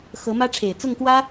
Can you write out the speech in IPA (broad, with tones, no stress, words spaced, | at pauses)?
xɤ˧˥mä˥ ʈ͡ʂʰe˨˩ɪ̯t͡sʊ˥˩ŋkwä˥